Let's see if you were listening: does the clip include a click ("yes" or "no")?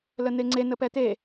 yes